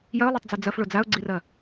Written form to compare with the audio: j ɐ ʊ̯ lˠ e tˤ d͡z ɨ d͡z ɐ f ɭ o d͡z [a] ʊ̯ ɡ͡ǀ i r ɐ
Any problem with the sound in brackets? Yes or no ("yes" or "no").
no